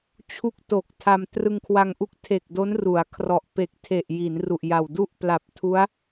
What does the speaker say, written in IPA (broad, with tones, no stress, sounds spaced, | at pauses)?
t͡ɕʰ u˥˩ k̚ t o˨˩ k̚ tʰ a˧ m t r ɯ˧ ŋ kʰ w a˧ ŋ ʔ u˦˥ k̚ tʰ e˨˩ k̚ d o˦˥ n r u˩˦ a̯ kʰ r ɔ˨˩ ʔ p e˨˩ k̚ tʰ e˨˩ ʔ j i˩˦ n r u˨˩ ʔ j a˨˩ w d u˥˩ ʔ p l a˨˩ p̚ tʰ u˦˥ a̯